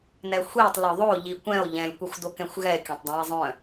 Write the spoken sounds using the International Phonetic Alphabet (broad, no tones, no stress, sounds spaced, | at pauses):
n ɛ xʷ i tˤ l œ ðˤ o ʎ i kʷ ɛ̃ o̯ ʎ ɛ̃ lʲ kʷ ɛ xʷ d o k ɛ̃ xʷ ɣ ɛ e̯ kʲ œ̃ tˤ dˤ ɛ̃ e̯ zˤ œ̃